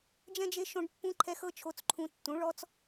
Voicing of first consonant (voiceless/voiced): voiced